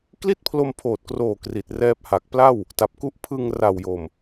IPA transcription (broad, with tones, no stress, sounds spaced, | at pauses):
k l i˥˩ t̚ pʰ l o˧ m pʰ oː˨˩ t̚ k r oː˨˩ k r i˨˩ t̚ r ɛː˦˥ p̚ h a˨˩ k̚ p l a˥˩ w | t a˨˩ p̚ k u˦˥ ʔ pʰ ɯ˧ ŋ r a˨˩ w j o˨˩ m